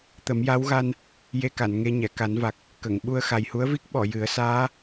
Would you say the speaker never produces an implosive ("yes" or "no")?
no